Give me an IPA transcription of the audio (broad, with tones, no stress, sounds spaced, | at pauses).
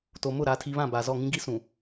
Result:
t o˨ m ʊ˦˨ ɾ aː˨ tʰ i˨ β ã˦˨ b aː˨ z ɔ˦˨ ŋ ĩ˦ ɡ i˦ s ũ˨